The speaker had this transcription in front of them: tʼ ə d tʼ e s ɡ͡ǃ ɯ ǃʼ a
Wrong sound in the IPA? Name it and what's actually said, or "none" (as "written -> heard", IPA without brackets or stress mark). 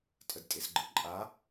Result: none